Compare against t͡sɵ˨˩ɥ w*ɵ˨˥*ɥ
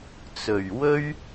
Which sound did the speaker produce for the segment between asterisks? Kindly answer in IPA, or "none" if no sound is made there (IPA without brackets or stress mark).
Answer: ɵ˥